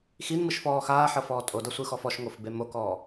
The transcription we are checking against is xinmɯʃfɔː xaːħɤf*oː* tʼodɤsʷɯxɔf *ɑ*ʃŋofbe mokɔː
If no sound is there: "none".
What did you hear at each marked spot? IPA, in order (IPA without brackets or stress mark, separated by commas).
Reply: ɔː, ɔ